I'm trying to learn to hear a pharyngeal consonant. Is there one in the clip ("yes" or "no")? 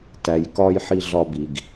yes